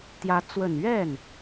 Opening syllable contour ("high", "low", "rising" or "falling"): rising